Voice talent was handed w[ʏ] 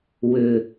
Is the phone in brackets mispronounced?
no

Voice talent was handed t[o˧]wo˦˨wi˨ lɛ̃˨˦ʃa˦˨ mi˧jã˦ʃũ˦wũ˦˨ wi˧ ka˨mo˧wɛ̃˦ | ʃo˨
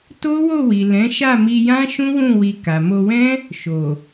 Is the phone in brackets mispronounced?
yes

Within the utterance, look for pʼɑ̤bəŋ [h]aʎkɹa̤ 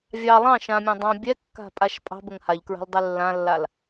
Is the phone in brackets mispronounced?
no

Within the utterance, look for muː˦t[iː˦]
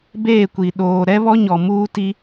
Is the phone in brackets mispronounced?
yes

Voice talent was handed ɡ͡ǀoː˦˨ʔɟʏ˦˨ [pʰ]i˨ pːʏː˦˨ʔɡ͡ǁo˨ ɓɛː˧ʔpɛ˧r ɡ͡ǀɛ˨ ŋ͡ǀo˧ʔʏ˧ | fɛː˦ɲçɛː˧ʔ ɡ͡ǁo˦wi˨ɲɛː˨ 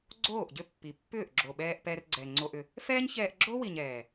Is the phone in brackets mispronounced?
yes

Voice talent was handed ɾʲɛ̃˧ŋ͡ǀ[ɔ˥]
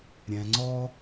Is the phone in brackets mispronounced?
no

